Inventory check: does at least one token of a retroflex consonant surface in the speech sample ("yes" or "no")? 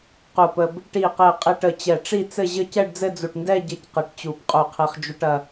yes